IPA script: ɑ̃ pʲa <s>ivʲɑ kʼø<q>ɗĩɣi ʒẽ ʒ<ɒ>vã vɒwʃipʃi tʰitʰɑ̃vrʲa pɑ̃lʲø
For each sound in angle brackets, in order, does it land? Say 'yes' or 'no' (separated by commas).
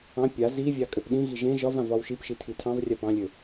no, no, yes